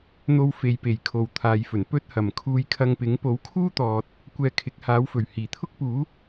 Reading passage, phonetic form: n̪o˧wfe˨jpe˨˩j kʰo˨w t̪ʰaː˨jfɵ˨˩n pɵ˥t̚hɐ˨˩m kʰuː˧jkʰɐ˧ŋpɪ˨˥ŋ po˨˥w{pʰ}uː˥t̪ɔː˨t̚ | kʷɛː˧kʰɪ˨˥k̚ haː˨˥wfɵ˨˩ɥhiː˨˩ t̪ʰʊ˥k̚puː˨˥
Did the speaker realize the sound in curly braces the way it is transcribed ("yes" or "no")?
no